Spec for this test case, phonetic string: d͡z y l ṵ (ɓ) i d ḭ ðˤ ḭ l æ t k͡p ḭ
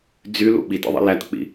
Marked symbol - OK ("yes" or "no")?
yes